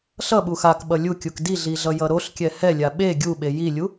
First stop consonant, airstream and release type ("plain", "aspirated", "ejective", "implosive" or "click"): implosive